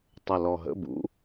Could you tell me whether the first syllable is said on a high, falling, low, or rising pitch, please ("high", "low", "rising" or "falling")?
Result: low